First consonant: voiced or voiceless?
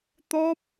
voiceless